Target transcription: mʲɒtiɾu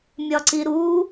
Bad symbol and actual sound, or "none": t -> ǀ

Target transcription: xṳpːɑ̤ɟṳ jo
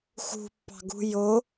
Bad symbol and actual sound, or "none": ɟ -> ɡ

